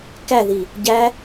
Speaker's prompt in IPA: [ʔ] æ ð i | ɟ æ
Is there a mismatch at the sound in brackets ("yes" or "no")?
yes